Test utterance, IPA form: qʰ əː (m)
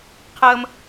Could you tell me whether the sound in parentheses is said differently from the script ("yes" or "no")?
no